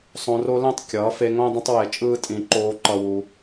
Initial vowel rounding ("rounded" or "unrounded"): rounded